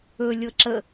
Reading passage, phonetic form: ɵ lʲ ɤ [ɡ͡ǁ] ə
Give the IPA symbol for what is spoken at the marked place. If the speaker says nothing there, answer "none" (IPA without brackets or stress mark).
ǁ